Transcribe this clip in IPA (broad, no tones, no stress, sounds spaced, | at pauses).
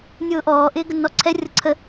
nʲ ʊː ʔ ɔː ʔ ɪː ɡ ə nː ɔ ǀʰ ɛ rʲ ʌ ǀʰ ə